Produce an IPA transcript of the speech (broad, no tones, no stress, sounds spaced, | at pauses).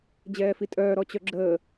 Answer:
d͡ʑ ɛː f i tʼ œː ɾ ɔ t͡ɕ œ ɡ͡ǁ əː